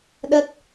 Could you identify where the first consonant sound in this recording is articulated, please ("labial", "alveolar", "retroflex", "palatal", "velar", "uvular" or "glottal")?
alveolar